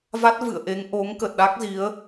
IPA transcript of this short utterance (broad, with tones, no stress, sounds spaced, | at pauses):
v a˦˥ t̚ v ɨ̰˧˨ ə̯ ʔ e˨˦ ŋ ʔ o˨˦ ŋ k ə˨˩ t̚ ɗ a˦˥ k̚ z i˨˦ ə̯